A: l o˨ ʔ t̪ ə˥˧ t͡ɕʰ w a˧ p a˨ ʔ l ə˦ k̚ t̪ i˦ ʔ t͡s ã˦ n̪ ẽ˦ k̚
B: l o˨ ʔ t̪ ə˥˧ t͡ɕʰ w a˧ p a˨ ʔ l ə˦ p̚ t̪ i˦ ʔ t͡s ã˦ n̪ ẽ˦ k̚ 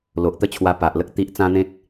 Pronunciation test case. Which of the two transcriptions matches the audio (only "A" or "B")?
A